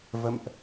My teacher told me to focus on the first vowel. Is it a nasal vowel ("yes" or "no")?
no